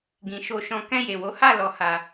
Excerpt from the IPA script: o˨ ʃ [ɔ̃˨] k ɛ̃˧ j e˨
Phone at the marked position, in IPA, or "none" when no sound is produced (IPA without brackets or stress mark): ɔ̃˨